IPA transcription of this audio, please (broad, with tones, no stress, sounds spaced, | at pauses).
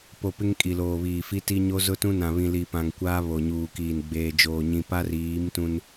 p o˨ p ɪ˦ ŋ kʼ i˨ l oː˨ β iː˨ f i˦ t i˦ ɲ o˦ z ʊ˦ t ũ˦ n ã˨ β ĩ˨ l i˨ p ã˨ ŋ kʷ aː˦ β o˨ ɲ uː˨ k iː˨ n ɡ͡b eː˨ d͡ʒ oː˨ ɲ ĩ˨ p a˦ r iː˨˦ m t ũ˦ n